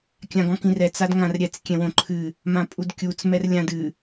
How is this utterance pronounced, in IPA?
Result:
kʲ ã ɡ ɔ̃ k ĩ r ɛ t͡s a d ŋ ã r ɾʲ ɛ t͡s kʲ ɛ̃ w õ ǃʰ ɨ | m ã pʼ u d kʲ u t͡s m ɛ r lʲ ã d ɨ

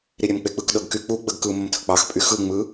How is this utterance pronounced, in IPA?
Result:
ɾ i ɾʲ ɛ m k͡p e k͡p ɯ k ɗ ɤ ɡ k y k͡p u ɡ͡b ə ɡ k ɯ m ə m tʰ ə k͡p ɑ x pʼ y x ɯ ŋ͡m ɯ

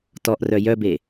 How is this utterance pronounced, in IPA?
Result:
t ɔ ʔ r œ j œ b e

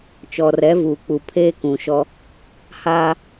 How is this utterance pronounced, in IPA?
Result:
t͡ʃ ɔ˨ r ɛ˨˦ v uː˨ k͡p u˨ pʰ eː˦ k ũ˨ ʃ ɔ˦ | h aː˦

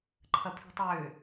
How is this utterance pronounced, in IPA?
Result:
ǃʰ ɐ pʰ e̤ tˤ ʏː

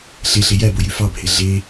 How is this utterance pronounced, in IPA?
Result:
ɬ e ɬ e j æ b o j y f ɑ bʱ e ɮ e

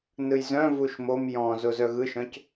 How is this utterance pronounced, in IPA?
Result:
n ɯ j z œ̃ v u ʃ m o m j ɔ̃ z o z œ ɣ ɯ ʃ œ̃ c

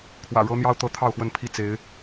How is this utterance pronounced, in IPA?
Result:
kʰ w ä̰˨˩ ɻ ɤ˦ n̪ j ɑ˦ ʊ̯ t̪ ɤ˨˦ t̪ʰ ɑ˥˨ ʊ̯ x w ə˥˨ n pʰ i˥˨ t͡s e˨˦ ɪ̯

